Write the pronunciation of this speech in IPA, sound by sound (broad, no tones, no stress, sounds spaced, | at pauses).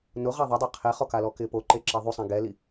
n ʊ ʁ a ðˤ ɪ dˤ a qʰ e χ ɔ k a l ɔ k ɪ p o ǃ e ǁ e ðˤ u sˤ ɛ̃ ɡ ɛ l i